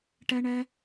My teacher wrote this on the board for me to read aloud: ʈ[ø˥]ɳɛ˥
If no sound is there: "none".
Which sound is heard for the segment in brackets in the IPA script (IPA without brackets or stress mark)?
ɛ˥